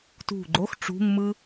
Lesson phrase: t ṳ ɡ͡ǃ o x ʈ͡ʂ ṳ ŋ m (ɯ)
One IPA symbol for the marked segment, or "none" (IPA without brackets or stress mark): ɯ